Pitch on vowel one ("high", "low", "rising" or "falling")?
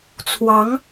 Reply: rising